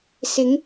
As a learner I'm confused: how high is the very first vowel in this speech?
high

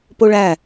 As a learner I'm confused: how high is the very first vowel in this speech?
mid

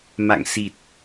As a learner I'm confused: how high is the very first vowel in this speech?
low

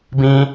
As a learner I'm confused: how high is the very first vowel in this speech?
high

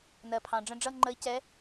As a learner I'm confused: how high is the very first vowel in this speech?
mid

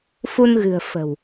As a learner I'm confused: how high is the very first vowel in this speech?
high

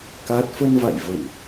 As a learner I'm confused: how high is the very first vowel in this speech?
low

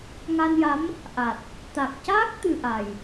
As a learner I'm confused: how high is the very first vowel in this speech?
low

